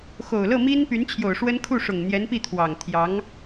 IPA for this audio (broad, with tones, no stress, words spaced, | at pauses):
xo˨˩ʊ̯ lɤ˥˩mi˥npy˧˥n t͡ɕʰjo˨˩ʊ̯ʂwə˥n kʰu˥˩ʂʊ˨˩ŋ n̪jɛ˧˥npi˥˩ t̪ʰwɑ˨˩ŋt̪ʰjɑ˧˥ŋ